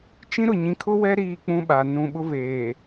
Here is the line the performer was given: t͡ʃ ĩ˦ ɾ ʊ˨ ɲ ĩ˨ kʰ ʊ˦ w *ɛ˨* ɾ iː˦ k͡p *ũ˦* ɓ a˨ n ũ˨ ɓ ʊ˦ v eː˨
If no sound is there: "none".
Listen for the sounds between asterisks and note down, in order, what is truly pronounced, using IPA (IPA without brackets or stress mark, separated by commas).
ɛ˦, ũ˦